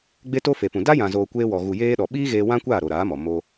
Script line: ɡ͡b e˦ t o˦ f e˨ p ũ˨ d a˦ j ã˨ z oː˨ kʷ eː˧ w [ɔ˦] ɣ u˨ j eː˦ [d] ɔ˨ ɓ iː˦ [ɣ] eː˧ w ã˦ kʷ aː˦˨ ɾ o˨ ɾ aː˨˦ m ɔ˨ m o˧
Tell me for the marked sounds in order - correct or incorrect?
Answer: incorrect: ɔ˨, incorrect: ɗ, correct

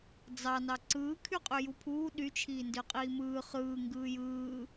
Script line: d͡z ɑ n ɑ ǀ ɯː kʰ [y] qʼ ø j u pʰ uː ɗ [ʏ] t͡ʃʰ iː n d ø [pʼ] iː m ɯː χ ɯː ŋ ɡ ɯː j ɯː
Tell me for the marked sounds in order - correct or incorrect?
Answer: correct, incorrect: y, incorrect: qʼ

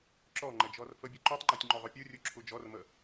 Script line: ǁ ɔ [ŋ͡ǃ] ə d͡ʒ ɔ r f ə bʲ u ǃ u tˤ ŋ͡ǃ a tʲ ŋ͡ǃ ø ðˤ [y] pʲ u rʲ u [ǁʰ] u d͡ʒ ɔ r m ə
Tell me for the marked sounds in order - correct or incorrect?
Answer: correct, incorrect: ø, correct

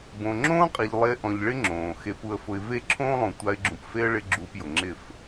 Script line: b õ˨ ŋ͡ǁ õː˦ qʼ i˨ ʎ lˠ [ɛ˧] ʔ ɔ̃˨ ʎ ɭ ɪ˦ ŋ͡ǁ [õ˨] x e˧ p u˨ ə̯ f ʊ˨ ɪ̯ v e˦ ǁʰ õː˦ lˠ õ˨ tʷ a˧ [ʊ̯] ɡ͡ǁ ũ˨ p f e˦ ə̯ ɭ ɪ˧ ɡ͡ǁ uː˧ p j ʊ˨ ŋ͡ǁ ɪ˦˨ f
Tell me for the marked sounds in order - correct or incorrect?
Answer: incorrect: e˧, incorrect: õː˨, incorrect: ɪ̯

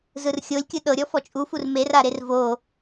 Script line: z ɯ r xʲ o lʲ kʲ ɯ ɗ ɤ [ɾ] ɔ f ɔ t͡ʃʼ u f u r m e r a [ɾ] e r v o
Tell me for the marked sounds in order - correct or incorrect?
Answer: incorrect: ɾʲ, correct

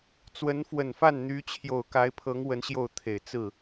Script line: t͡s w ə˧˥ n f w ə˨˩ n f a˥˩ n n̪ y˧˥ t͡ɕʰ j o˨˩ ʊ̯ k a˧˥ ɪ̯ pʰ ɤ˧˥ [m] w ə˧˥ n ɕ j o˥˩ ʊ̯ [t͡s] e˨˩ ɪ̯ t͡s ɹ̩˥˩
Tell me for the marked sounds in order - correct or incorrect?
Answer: incorrect: ŋ, incorrect: t̪ʰ

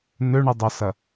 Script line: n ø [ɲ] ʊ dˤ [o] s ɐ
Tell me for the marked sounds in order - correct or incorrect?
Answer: incorrect: ɳ, correct

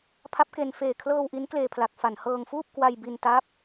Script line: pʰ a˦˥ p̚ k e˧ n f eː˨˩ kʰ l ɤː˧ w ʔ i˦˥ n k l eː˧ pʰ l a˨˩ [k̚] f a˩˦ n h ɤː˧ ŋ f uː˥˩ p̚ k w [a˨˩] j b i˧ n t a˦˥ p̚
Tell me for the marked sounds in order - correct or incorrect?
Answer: correct, incorrect: a˧

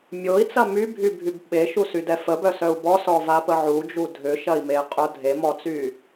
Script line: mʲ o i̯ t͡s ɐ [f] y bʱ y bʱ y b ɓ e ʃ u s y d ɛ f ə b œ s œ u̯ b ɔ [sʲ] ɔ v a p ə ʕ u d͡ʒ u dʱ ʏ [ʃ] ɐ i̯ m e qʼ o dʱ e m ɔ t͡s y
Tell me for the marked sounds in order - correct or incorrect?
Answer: incorrect: m, incorrect: s, correct

